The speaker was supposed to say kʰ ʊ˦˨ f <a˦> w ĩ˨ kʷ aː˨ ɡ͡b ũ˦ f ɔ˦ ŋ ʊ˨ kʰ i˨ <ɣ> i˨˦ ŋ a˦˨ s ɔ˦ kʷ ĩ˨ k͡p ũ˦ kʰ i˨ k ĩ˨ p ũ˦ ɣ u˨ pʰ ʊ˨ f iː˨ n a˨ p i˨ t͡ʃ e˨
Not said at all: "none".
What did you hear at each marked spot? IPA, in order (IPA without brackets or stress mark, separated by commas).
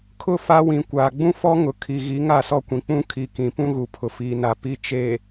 a˦, ɣ